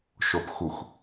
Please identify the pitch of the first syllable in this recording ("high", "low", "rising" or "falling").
low